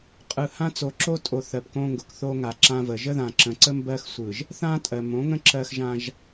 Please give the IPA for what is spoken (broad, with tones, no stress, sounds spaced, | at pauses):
qʼ ɯ˨ h ã˦ t͡s o˨ ǁ o˦ tʼ o˨ θ ɜ˨ p k õ˦ ŋ ɡ ʊ˨ k θ o˦ ŋ a˨ ǁ ã˦ v ə˨ ʒ ə˦ ð ã˨ ǁ ə̃˨ ǀ ə˦ m b ɜ˦ x sʷ ɯ˨ ʒ | θ ã˦ tʼ ɜ˨ m õ˨˦ ŋ ə̃˦ ǁ ɜ˦ x ʒ ã˦ ʒ